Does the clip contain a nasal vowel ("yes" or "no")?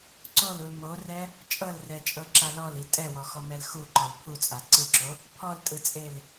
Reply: no